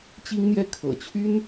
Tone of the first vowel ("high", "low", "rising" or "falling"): high